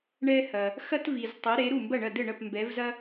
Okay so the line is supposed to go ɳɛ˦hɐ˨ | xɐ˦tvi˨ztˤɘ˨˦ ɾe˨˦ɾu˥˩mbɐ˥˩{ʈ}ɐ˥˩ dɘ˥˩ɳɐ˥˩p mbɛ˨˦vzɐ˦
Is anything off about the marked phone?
yes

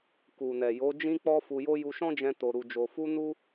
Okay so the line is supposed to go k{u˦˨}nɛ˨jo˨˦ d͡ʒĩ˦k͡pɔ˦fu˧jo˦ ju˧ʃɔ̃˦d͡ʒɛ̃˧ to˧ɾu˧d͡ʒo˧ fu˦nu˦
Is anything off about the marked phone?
yes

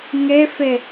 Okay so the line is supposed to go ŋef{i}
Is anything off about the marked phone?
yes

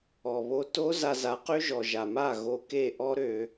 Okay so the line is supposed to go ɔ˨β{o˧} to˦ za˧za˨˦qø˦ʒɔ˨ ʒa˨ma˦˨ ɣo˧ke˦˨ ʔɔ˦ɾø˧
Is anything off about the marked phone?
no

